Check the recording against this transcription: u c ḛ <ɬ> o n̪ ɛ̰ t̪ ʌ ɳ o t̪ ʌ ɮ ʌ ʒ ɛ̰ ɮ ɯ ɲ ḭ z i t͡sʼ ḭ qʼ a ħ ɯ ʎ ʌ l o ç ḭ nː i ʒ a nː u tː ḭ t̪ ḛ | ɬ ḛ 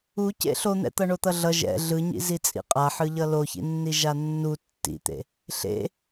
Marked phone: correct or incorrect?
correct